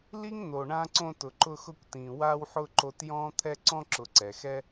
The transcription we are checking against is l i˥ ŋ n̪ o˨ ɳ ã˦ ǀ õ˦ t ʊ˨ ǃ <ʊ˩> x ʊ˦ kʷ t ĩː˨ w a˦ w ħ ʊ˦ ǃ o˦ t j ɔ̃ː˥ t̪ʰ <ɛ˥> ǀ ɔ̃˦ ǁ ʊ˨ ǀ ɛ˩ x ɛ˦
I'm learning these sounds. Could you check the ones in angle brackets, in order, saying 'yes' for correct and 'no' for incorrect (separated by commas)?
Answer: no, yes